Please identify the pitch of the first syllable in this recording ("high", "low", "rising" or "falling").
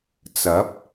rising